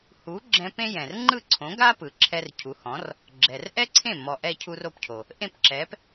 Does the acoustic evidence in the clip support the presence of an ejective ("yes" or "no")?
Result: no